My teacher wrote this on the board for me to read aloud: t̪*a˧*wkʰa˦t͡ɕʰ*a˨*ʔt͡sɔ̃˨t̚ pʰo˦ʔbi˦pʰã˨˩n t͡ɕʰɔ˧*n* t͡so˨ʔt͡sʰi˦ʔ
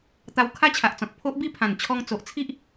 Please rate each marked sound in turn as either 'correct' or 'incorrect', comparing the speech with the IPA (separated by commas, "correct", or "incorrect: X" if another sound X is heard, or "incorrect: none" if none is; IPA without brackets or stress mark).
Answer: correct, correct, incorrect: ŋ